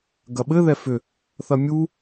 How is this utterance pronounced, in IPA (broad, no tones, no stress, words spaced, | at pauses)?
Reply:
ɡɐɓɘ ðɛfʏ | θɐmʲu